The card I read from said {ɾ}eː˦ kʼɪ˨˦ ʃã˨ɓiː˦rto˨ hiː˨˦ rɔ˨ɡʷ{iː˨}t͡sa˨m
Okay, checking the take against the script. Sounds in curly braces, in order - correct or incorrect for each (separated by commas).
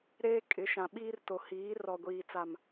correct, correct